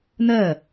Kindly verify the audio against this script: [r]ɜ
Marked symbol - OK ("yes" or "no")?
no